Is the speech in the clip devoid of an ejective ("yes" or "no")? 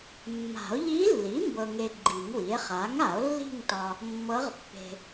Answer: yes